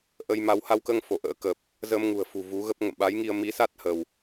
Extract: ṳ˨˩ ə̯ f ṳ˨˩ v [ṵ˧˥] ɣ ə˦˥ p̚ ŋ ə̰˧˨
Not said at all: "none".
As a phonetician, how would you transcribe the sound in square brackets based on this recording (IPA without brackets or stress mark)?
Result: u˨˦